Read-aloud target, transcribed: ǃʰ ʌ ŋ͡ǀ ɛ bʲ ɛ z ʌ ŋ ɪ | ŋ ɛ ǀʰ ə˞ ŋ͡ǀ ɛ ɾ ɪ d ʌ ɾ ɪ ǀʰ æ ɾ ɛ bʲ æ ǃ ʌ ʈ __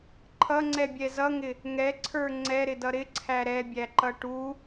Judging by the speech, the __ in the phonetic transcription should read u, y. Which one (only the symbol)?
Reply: u